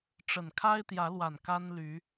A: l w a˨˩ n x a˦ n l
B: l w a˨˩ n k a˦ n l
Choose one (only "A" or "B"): B